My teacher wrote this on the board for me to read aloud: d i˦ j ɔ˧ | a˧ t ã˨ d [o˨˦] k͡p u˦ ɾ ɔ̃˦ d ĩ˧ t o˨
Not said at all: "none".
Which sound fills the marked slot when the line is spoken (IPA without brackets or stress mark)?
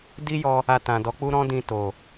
ɔ˨˦